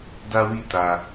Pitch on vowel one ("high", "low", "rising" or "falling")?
high